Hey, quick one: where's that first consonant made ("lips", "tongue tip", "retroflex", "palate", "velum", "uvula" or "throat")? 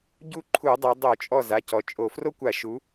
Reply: palate